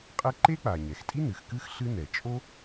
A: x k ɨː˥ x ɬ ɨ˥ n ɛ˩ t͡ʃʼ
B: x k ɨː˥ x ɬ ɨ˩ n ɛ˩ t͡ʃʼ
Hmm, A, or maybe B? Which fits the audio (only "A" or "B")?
A